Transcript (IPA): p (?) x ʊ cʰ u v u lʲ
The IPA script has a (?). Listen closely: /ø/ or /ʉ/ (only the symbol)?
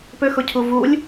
ø